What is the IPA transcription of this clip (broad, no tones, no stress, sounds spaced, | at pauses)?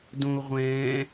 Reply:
d õ u̯ ʁʷ ɛ̃ː